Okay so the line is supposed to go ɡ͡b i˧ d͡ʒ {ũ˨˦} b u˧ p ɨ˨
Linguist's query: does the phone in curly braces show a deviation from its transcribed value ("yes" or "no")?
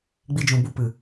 yes